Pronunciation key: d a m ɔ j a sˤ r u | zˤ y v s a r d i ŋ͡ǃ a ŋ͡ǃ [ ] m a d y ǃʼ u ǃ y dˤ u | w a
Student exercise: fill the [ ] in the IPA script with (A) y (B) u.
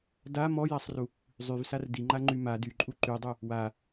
A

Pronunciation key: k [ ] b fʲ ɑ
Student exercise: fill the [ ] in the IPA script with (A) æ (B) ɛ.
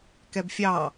B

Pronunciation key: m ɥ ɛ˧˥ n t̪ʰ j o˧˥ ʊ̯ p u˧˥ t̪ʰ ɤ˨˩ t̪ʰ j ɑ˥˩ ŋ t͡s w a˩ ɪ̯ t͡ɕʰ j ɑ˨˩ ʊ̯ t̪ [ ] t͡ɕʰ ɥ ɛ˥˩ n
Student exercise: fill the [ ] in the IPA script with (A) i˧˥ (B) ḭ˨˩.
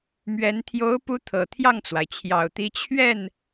A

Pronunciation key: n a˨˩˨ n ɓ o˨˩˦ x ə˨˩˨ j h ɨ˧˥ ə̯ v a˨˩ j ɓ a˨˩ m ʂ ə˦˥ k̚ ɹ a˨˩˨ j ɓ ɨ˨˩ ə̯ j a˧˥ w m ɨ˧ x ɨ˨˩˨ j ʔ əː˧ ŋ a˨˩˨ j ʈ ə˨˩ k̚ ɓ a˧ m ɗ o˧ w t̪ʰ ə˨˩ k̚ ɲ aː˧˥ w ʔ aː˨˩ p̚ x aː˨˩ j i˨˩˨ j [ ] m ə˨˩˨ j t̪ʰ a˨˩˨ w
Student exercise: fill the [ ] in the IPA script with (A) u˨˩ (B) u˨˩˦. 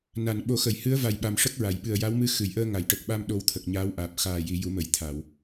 B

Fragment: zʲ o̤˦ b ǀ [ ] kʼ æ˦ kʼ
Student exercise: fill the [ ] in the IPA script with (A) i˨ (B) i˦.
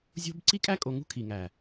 B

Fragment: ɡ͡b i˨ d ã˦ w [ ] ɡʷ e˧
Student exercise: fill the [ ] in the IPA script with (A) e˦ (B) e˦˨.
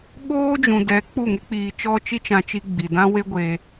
A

